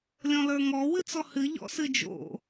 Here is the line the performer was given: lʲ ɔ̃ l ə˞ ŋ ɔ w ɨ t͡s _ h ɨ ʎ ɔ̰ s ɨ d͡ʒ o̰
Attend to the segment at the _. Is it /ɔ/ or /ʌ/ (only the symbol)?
ɔ